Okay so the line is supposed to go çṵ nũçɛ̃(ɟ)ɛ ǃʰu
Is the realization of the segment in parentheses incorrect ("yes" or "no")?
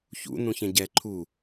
no